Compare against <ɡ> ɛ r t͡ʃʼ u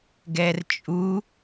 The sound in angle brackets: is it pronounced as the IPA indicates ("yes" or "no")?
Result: yes